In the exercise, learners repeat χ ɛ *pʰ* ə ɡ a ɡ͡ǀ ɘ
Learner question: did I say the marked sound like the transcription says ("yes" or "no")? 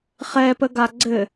no